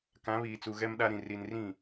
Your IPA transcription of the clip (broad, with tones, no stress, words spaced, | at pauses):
kã˨˦βiː˨t͡su˨ ɣɛ˦mɗa˦ɾĩ˨ ri˨nrĩ˦˨